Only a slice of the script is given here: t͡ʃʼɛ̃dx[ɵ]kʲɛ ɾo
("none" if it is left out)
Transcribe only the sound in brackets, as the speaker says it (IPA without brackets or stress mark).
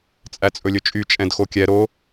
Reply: o